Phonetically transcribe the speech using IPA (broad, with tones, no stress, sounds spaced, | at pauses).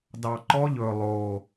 d ɑ˨˩ ǃ ɔ˦˥ ʎ ɵ˨˩ lˠ o˨˩